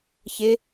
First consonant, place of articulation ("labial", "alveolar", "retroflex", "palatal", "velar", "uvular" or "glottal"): palatal